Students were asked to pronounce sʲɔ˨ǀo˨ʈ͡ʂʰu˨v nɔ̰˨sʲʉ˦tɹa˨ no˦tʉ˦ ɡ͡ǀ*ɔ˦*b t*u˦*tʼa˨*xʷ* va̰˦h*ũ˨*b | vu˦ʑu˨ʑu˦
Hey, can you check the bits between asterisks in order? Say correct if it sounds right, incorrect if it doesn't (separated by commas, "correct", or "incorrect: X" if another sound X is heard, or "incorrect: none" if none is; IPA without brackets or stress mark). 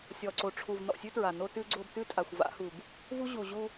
incorrect: o˦, incorrect: ʉ˦, correct, incorrect: u˨